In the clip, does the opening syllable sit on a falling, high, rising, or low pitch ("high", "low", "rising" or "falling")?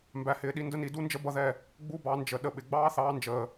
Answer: low